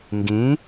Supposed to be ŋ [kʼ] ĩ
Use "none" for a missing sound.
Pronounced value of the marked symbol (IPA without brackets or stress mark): ɡ